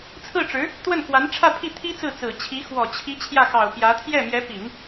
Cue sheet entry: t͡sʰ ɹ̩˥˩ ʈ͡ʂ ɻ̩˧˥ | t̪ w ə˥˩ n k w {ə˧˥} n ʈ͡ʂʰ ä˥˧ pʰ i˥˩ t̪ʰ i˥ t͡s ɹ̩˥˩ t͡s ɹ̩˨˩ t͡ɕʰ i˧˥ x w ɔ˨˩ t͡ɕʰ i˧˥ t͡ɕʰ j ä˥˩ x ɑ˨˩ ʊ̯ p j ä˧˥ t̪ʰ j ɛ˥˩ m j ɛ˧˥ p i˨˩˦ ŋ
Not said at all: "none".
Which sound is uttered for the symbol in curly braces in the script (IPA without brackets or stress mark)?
a˧˥